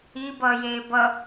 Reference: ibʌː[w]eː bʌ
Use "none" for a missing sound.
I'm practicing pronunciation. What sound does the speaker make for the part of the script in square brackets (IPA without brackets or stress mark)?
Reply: j